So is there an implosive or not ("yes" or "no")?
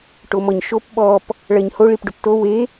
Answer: yes